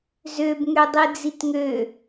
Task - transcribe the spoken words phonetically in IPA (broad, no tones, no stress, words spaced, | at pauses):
zøbŋødˤi d͡zitŋø